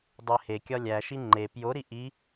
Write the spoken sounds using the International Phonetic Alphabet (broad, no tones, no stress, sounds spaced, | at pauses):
dˤ e h e kʲ ɒ lʲ æ ʃ i ŋ͡ǃ e p j o ɾ i ʔ i